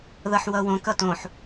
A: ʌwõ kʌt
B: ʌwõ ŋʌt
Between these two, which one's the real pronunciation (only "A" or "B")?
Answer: A